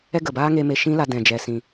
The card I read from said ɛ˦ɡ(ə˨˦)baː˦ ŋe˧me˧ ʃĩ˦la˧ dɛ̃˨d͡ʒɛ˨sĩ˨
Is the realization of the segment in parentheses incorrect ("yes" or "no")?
yes